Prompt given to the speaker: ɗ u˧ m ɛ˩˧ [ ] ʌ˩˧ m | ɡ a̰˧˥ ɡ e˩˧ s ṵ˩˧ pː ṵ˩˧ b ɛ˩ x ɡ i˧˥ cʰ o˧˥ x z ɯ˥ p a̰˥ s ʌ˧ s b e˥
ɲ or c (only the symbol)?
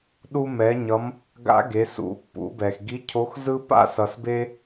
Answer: ɲ